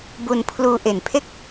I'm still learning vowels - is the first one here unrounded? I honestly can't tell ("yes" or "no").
no